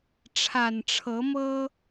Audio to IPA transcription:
ʈ͡ʂʰ a˨˩ n ʈ͡ʂʰ ɤ˧˥ m ɤ˥

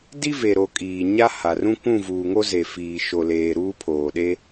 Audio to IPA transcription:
d i˦ v e˨ ɾ o˨ kʼ iː˨ ɲ a˦ h a˨ r ũ˦ kʷ ũ˦˨ v uː˨ ŋ o˦ z e˨ f iː˨ ʃ o˨ l eː˨ ɾ uː˦ pʰ oː˨ ɗ e˦

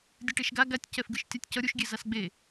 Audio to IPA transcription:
dʲ ɯ ʈ e ʃ ɡ a ɡ a tʲ c ɛ f ɡ ɯ ʃ tʲ a tʲ c ʌ ɾʲ u ʃ ɡʲ e z a s ɡ͡b e

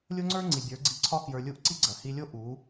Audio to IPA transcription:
lʲ o˦ ŋ͡ǀ ə˞˦ ŋ͡ǀ i˨ bʲ ə˞˨˦ ɡ͡ǀ i˧ ǀʰ ɒ˦ k j ə˞˧ lʲ u˦˨ ʔ ǀ i˦ ɡ͡ǀ ɐ˨ h i˧ lʲ o˦ ʔ u˨˦

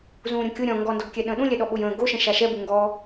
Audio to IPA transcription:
z ũː ɾʲ õ kʲ ʊ ɾʲ ɔ̃ ŋ ɡ ɔ n d ɔ ɡ kʲ ɛ ɗ ə̃ː ɗ ũ lʲ ɛ ɗ ɔ ɓ ʊ j ə̃ː ɡ o ʃ ɛ̃ ʃ a ʃ ɛ b u ŋ ɡ ɔ

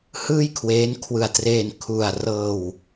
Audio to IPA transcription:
h ɯː˥˩ j kʰ w eː˦˥ n kʰ w ɯ˧ a̯ t r eː˧ n kʰ u˧ a̯ r ɤː˧ w

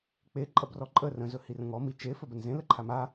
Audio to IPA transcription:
k͡p e ǃʼ ɐ b r ɔ ǃʼ ə r ə̃ z ɵ h i r ə̃ ŋ ɔ m i t͡ʃ e f ɵ b ə n z ẽ l ə ǃʰ a m a

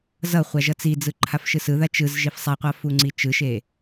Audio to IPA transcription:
z ʌ χʷ a ʒ ʌ t͡s i d͡z ɯ ǃʰ a f ʃ ɯ s ɯ ð a t͡ʃ ɯ z ʒ i f sˤ a qʷ a f u ŋ͡ǀ i t͡ʃ ɯ ʃ e

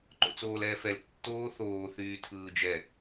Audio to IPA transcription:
ǃ o̰ t͡s oː l ɛː f ɛ l tː oː θ oː θ yː tʰ ɯː d͡ʒ ɛ

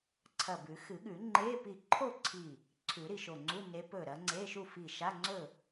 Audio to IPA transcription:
ǀʰ ɐ˧˩ b ʉ˨˩˦ x ɨ˨˩˦ ɠ ʉ˨˩˦ ŋ͡ǃ e˧˥˧ p i˧˩ ǃʰ o˥˨ ǀʰ i˧˩ | ǀʰ ʉ˨˩˦ ɾ i˧˩ ʃ o˧˩ ŋ͡ǀ u˧˥˧ n e˨˦ p ɵ˧˩ ɾ ɐ˨˦ ŋ͡ǀ e˧˥˧ ʃ u˥˨ f i˧˩ ʃ a˧˥˧ ŋ͡ǀ ɵ˥˨

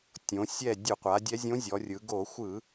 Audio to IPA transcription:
tʲ õ˩˧ sʲ ɛ˦˨ dʲ u˧˩˧ qʷ a˩˧ dʲ ɛ˧˥ zʲ õ˧˥ zʲ ɔ˩˧ rʲ ɯ˩˧ ɡ o˧˩˧ xʷ ɯ˧˩˧

